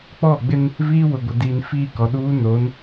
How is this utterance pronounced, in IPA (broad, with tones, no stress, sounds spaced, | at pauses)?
k͡p ɔ˦˨ ɡ͡b ɪ˦ n | v iː˦ w ʊ˨ ɡʷ ɪ˨ d iː˨ n f iː˦˨ k ɔ˨ ɗ uː˦ n o˨˦ n